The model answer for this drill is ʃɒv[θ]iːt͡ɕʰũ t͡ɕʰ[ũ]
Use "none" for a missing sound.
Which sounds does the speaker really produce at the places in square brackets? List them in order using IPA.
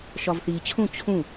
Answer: θ, ũ

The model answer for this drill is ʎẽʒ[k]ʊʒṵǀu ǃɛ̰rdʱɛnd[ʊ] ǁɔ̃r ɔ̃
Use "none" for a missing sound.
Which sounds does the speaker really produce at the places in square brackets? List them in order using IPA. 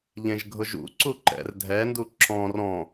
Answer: ɡʱ, u

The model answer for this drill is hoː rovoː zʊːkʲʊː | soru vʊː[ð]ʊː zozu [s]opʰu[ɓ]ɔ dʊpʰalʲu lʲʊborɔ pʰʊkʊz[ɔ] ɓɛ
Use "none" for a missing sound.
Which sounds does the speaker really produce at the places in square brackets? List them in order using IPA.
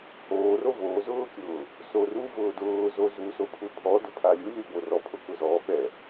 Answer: d, s, pʰ, ɔ

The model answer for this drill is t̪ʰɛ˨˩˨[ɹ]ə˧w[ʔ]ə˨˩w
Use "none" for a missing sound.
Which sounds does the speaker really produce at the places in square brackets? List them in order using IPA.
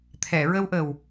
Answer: ɹ, ʔ

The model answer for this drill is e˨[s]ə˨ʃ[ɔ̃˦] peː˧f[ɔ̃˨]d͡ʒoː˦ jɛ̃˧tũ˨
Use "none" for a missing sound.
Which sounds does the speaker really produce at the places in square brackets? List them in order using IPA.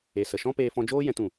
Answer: s, ɔ̃˦, ɔ̃˧

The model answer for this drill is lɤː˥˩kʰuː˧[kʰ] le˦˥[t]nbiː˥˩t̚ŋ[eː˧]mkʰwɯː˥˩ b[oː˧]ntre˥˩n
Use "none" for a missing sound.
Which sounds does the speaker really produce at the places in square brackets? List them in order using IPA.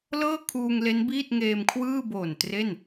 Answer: ŋ, none, eː˧, oː˨˩

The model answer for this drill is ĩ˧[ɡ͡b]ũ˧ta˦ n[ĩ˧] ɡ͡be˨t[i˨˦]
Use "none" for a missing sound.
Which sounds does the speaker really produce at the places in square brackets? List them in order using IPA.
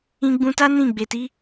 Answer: ɡ͡b, ĩ˦˨, i˨˦

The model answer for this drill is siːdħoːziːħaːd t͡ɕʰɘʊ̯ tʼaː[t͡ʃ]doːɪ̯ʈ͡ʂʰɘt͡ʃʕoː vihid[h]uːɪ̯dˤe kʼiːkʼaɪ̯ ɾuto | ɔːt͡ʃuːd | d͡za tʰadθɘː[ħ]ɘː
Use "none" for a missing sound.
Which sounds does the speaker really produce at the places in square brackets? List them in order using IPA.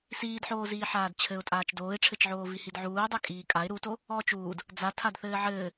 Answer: t͡ʃ, ʕ, ʕ

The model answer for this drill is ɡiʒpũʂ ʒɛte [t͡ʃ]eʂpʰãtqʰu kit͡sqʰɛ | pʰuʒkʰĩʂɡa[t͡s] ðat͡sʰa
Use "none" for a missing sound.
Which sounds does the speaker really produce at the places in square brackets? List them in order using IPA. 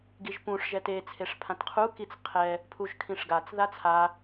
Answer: t͡sʰ, t͡s

